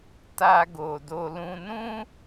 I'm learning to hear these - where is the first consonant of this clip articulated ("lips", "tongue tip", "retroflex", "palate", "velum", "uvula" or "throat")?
tongue tip